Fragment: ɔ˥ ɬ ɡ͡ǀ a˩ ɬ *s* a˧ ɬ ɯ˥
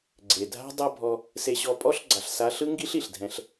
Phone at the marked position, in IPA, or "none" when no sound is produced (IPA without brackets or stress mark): s